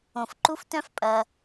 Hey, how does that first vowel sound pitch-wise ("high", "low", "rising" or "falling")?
low